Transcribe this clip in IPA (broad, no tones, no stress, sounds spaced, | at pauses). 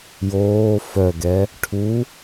j oː f œ ɡ ɛ | ʈʰ u